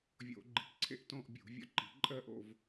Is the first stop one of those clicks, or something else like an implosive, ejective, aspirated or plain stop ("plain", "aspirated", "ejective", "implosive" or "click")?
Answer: click